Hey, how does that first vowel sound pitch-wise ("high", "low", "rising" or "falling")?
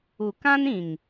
low